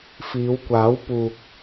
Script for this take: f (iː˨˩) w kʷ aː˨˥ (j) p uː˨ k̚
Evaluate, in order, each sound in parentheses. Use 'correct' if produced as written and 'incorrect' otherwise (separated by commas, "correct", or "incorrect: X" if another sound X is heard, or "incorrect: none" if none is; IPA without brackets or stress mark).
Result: incorrect: iː˨˧, incorrect: w